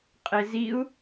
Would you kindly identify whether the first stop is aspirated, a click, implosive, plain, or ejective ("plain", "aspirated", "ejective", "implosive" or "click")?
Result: ejective